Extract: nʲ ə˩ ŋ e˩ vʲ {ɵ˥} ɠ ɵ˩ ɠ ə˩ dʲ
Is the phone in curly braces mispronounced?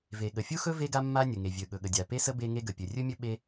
yes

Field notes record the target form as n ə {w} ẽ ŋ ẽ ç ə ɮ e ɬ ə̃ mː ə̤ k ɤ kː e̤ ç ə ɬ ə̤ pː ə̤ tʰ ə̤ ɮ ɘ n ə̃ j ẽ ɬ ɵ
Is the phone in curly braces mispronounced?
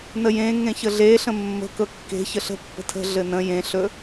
yes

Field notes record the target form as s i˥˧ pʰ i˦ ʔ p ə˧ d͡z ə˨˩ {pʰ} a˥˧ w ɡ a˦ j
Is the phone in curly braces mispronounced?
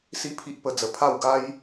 no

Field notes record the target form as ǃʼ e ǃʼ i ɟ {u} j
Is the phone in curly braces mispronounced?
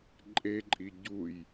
no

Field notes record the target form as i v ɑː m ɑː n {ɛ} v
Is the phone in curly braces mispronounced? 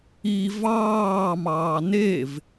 yes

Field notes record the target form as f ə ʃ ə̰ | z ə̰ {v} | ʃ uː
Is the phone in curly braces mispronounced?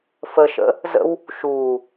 yes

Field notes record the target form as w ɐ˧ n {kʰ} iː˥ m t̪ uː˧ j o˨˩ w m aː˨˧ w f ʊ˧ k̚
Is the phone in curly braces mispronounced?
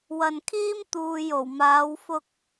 no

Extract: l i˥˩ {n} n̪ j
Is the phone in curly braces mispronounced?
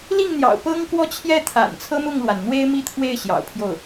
yes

